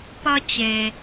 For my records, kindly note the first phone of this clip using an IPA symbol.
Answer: p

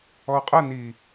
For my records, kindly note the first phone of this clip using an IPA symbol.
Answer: ɔ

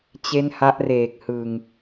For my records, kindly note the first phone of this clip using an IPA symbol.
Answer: t͡ɕ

